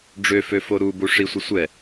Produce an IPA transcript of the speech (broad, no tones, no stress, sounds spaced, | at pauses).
ɖ͡ʐ ø f ø f o ɾ u b u ʂ i sʷ ə sʷ ɛ